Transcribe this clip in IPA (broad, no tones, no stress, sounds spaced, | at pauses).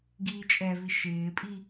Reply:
ɡ iː t͡ʃʼ ɛ v i ʃ ɪː pʼ i